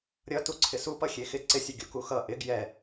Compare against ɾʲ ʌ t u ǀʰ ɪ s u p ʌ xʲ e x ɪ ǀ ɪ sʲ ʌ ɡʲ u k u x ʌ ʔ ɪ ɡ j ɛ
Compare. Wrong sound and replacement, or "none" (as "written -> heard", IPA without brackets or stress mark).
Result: none